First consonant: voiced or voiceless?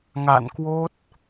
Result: voiced